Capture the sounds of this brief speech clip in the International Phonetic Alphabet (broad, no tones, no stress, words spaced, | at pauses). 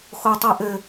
xotˤiʔɘ